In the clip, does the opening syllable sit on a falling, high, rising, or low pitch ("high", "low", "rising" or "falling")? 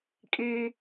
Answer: high